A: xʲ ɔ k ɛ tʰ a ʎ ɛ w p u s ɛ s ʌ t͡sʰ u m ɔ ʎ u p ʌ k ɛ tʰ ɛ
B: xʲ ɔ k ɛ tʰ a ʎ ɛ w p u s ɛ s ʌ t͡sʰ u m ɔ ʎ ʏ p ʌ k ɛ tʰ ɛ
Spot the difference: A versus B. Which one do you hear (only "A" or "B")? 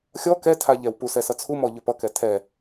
B